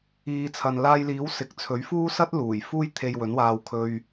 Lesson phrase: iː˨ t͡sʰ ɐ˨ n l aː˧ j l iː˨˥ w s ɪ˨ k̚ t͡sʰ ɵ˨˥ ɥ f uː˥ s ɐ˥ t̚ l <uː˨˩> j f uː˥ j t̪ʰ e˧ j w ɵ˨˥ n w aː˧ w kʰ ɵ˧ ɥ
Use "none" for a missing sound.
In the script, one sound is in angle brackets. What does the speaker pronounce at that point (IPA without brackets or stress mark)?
uː˨˩